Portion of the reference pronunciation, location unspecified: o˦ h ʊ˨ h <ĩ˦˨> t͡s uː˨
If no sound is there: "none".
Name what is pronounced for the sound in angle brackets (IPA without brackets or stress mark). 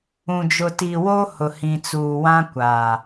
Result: ĩ˨